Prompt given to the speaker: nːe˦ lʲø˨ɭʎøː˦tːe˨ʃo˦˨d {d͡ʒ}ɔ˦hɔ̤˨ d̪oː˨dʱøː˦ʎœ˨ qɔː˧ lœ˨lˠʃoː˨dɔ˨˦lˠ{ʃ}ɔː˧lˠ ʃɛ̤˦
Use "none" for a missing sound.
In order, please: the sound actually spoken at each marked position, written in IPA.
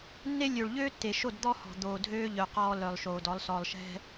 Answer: d̪, s

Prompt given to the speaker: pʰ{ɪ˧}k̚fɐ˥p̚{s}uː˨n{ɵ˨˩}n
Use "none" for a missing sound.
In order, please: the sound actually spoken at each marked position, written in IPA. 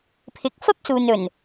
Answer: ɪ˨˥, s, ɵ˨˩

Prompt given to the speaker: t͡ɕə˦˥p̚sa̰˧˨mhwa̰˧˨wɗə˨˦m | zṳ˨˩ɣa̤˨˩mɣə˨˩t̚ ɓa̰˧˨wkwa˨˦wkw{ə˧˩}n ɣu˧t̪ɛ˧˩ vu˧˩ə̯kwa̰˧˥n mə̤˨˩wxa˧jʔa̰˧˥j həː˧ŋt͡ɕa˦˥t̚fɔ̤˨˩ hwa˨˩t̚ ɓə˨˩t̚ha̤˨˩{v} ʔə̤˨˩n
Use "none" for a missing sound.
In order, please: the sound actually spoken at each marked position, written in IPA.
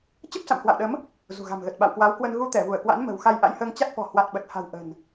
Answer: ə˧, w

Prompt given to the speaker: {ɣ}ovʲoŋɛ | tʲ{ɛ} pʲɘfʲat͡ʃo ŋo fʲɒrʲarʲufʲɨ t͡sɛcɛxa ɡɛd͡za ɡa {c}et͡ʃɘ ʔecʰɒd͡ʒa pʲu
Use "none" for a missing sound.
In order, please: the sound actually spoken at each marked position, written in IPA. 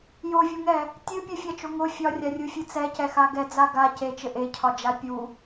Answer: j, ɨ, c

